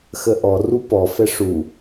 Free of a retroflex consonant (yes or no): no